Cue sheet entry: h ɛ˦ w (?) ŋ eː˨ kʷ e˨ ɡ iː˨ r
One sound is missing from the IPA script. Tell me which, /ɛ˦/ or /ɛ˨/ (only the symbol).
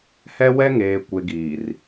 ɛ˦